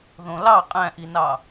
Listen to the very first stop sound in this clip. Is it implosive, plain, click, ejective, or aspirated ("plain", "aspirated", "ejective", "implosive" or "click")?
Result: ejective